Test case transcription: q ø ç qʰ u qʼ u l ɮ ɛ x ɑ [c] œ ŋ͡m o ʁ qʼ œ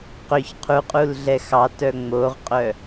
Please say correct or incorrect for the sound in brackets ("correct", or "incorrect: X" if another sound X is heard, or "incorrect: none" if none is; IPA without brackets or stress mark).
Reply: incorrect: t